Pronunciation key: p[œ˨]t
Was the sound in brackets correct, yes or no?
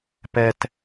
no